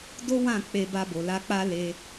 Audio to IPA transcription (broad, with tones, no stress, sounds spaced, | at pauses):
d o˦ w ã˦˨ k͡p e˧ b a˧ b o˨ l a˧ k͡p a˦ l e˧